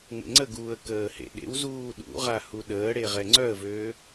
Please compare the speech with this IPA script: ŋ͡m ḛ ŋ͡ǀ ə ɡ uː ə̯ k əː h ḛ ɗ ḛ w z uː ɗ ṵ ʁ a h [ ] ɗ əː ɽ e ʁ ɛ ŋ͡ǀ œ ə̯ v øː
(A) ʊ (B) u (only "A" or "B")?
B